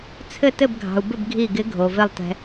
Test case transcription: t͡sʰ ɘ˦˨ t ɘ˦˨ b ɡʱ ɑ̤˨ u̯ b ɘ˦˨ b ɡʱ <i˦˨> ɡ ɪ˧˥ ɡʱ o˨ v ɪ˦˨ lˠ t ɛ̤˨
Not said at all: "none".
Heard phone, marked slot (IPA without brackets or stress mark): i˦˨